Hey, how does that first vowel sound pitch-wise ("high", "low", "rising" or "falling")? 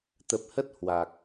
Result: low